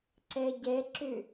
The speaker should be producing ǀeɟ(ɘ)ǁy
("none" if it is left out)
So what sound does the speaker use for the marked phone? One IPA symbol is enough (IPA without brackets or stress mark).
e